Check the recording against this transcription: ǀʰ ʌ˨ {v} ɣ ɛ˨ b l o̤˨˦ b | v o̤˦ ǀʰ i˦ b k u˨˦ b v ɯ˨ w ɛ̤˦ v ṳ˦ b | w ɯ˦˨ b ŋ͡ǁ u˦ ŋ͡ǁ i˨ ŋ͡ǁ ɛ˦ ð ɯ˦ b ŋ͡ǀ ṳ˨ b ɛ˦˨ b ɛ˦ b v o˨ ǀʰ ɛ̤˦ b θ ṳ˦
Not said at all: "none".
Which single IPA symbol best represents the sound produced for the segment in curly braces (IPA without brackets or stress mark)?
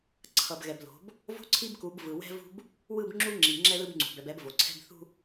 b